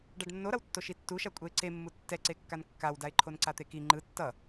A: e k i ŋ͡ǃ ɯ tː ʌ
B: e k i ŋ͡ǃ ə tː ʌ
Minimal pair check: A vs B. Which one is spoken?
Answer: A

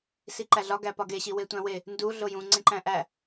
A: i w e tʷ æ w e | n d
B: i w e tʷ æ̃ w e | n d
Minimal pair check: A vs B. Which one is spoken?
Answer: B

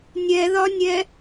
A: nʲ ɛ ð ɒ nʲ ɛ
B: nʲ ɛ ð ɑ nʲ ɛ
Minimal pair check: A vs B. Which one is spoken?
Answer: A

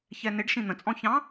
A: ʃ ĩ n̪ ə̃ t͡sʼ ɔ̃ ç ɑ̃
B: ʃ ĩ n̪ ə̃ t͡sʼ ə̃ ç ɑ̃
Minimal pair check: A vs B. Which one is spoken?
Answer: A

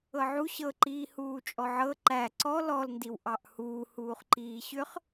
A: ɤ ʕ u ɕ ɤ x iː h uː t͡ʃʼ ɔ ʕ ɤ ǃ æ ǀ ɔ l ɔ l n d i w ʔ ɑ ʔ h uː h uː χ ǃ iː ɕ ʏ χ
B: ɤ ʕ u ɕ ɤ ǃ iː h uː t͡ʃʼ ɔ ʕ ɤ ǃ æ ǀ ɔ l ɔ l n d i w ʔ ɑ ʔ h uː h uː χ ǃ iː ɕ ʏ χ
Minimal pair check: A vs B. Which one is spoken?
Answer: B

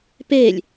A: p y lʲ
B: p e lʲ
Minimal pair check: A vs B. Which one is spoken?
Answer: B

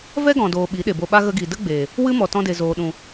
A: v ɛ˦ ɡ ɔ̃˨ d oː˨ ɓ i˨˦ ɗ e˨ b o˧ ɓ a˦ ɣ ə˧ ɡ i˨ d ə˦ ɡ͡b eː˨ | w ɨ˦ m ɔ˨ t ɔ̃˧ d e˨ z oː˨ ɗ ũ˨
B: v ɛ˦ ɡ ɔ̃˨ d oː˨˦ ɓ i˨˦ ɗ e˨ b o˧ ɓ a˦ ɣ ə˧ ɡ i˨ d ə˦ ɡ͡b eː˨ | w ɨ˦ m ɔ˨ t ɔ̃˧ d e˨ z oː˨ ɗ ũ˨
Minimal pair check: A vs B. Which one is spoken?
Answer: A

